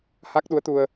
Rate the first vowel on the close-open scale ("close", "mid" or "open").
open